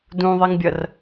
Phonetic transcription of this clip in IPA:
d ũ ðˤ i ŋ bʲ ɐ r

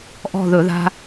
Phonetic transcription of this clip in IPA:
ʔ ɔ̤˦˨ ð ɵ˧˩˧ ð a̤˦

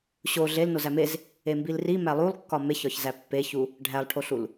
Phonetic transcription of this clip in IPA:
ɕ o ɮ e l n o z æ m e z | e m b i l r i m æ lˠ u lˠ kː ɒ m e ç ɒ ç z æ pː e ç u | ɖʱ æ lˠ ʈʰ o ɬ u l

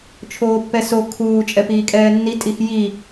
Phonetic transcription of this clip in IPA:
t͡ʃʰ oː pː ɛ s o kʰ uː t͡ʃʼ ɛ p iː kʼ ɛː nː i tʼ i x j i

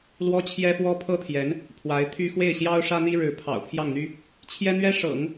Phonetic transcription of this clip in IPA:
l w ɔ˥ t͡ɕʰ j ɛ˥ f w ɔ˥ pʰ ɤ˥ t̪ʰ j ɛ˧˥ n | pʰ w a˧˥ ɪ̯ t̪ʰ y˥ x w e˥˩ ɪ̯ ɕ j ɑ˥ ʊ̯ ʂ ä˥ n̪ i˥ ɻ ɻ̩˧˥ pʰ ɑ̰˨˩ ʊ̯ pʰ j ɑ˥˩ ŋ n̪ y˥ | t͡ɕʰ j ɛ˥ n̪ ɥ ɛ˥ ʂ ɤ̰˨˩˦ ŋ

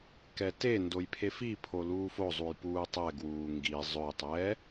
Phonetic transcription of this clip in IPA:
k ɛ t e n d o j pʰ e f i pʰ o l uː f o zˤ u j p uː tˤ ɛ ɡ w uː ŋ ɡ i zˤ ɵ j tˤ ɛː

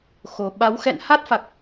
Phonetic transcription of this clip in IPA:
x o˨˩ ɓ a˨˦ w x ɛ̰˧˨ n h a˦˥ t̚ f a˨˩ k̚

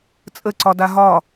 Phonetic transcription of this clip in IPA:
t͡sʼ ə ǀ ɒ d a ɦ ɒ

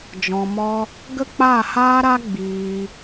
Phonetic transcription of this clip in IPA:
d͡ʒ ɔ̃˧ m ɔ˦ | ɡ ə˦ k͡p aː˦˨ h aː˦ ɾ a˦ ɡ͡b iː˧

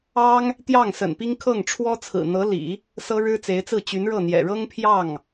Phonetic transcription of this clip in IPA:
ɑ˥ ŋ | t̪ j ɑ˥˩ ŋ s ə̰˨˩ n p i˥ ŋ kʰ ɤ˥˩ ŋ ʈ͡ʂʰ w ɔ˥ t͡sʰ ɹ̩˨˩ n̪ ɤ˧˥ l ḭ˨˩˦ | s ɤ˥ ɻ ɻ̩˥ t͡s e˧˥ ɪ̯ t͡s ɹ̩˥˩ t͡ɕ y˧˥ n ɻ ɤ˥˩ n̪ j ɛ̰˨˩ ɻ ɤ˥ ŋ pʰ j ɑ˥˩ ŋ

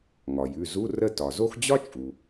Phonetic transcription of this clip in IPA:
ŋ ɒ˩ j ʉ˩˧˩ z u˧˥˧ r ə˦˨ t ɒ˩ z o˥ x d͡ʑ ɒ˥ t͡ʃʼ u˩

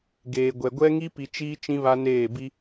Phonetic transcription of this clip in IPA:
ɡ eː˨ ɡʷ ɛ˨ ɡʷ ɛ˦ ŋ i˦ p i˨ t͡ʃ iː˦ t͡ʃ ĩ˦ β a˦ n eː˦˨ b i˦

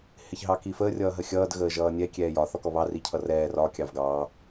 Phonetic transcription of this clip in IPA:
h ɪ ç ɦ ɑ k i f əː rʲ ʌː ɦ ə xʲ ʌː d ɣ əː ʒ ʌː nʲ ɛ kʲ ɛː j ɒ θ ɔ k ɔ β ɑ r i cʰ ʌ r ɛː r ɒ kʲ ɑ v ɡ ɑ

